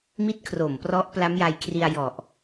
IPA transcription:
m i˥˩ t̚ kʰ r o˨˩ m p r ɔ˦˥ ʔ p l a˦˥ m j a˧ j kʰ r i˧ a̯ j ɔ˨˩ ʔ

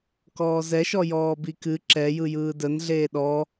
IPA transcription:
k ɔː z ɛ ʃ ɔ j ɔː b i k ɨ ǁ ɛ j ɯ j ɯː d ə n ɮ eː ɗ ɔ

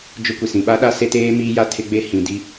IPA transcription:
d͡ʒ ʊ˦ kʷ i˨ s ĩ˨ ɓ a˦ ɗ a˦ s e˦ t eː˦ m iː˦ j a˦ tʰ ɪ˦ ɡ͡b e˦ h ĩ˨ d i˦

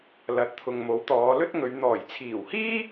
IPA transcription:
l ɐ˨ t̚ t̪ʰ ʊ˨ ŋ m o˨˥ w t̪ ɔː˨˧ l ɵ˥ t̚ ŋ ɵ˨˧ ɥ n̪ ɔː˨˩ j t͡sʰ iː˨˩ w h iː˥

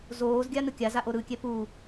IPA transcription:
z oː z ɡʲ a n ɯ kʲ a z a ʔ o ɾ ɯ kʲ ɛ p u

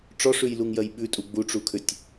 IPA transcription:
ʈ͡ʂ ɔ ʂ ʉ j l u ŋ j ɜ j ɓ ʉ tʼ u ɡ͡b u ʈ͡ʂ u kʰ ʏ tʲ

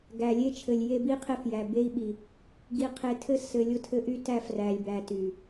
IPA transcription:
ɡ æ˨ lʲ e˦ t͡ʃʰ ɘ˨ lʲ j e˦ b i˦ qʰ e˦ f j æ˨ b e˦ i̯ ɓ i˨ | ɡ i˨ qʰ e˨ tʰ ɘ˦ s ɘ˨ lʲ ʊ˦ tʰ ɘ˦ ʔ y˦ t æ˦ f r æ˨ lʲ b æ˨ t y˨

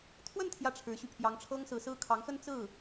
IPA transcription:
t̪ʰ w ə˥˧ n t̪ʰ j ä˥˩ ʈ͡ʂʰ ɻ̩˧˥ ɕ y˧ pʰ j ɑ˧˥ ŋ ʈ͡ʂʰ ɤ˥ ŋ s ɹ̩˧˥ s ɹ̩˥ kʰ ɑ˧˥ ŋ x ə˥ n t͡s ɹ̩˥˩

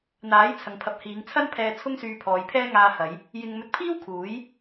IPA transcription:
n̪ aː˨˥ j t͡sʰ ɐ˨ ŋ pʰ ɐ˨˥ p̚ h iː˨˧ ŋ t͡sʰ ɐ˥ n pʰ ɛː˧ t͡sʰ ʊ˥ ŋ s yː˧ pʰ ɔː˨˧ j pʰ ɛː˥ ŋ aː˧ h ɐ˨˧ j | j ɪ˧ ŋ m ɵ˧ t̚ pʰ iː˥ w kʰ uː˨˥ j

